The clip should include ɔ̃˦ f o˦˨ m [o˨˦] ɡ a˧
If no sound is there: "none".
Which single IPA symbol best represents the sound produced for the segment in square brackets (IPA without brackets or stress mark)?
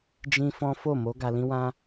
o˨˦